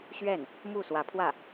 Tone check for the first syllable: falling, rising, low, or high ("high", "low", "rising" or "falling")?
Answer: falling